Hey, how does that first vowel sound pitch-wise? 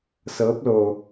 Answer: rising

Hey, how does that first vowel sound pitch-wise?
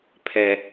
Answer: high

